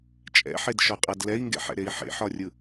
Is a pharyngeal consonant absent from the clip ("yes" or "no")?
no